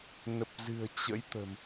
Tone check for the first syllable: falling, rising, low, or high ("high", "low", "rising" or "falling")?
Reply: low